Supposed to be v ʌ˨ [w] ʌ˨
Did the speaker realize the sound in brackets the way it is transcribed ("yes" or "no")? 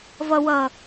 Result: yes